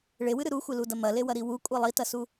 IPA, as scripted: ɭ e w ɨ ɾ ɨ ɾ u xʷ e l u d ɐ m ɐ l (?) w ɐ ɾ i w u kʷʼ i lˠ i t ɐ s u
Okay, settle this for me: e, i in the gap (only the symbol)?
e